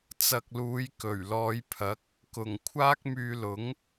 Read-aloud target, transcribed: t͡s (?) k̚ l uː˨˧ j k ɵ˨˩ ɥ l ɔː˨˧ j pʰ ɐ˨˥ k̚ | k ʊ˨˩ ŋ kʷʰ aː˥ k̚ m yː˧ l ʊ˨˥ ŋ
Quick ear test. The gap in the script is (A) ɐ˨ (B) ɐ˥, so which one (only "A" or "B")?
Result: A